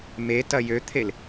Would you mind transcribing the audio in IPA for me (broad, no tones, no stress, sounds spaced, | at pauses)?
m e t ɐ j ø t̪ʰ e l